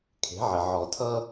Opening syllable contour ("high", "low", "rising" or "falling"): rising